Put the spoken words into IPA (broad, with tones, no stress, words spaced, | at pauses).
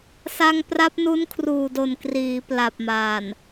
sa˧ŋpra˦˥p̚nu˦˥n kʰruː˨˩do˨˩n kriː˩˦pla˨˩p̚maː˨˩n